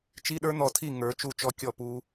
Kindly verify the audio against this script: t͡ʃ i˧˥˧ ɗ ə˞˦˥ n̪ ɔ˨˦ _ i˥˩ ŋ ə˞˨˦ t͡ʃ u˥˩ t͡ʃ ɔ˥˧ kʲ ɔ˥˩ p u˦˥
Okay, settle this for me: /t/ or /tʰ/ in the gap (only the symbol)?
tʰ